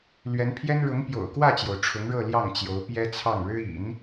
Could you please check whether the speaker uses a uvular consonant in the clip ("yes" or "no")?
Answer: no